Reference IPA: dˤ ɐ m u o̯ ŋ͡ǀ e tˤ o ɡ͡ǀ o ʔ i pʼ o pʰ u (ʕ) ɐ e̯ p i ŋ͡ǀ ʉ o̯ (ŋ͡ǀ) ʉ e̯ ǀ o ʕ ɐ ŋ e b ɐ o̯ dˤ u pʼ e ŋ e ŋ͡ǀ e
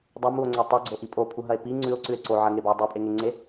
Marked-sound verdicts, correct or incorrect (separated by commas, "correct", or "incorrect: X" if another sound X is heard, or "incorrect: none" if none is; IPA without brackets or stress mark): incorrect: ɦ, incorrect: ǀ